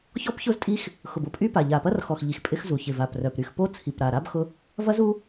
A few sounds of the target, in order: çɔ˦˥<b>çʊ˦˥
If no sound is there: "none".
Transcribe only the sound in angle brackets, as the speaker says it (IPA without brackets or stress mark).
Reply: p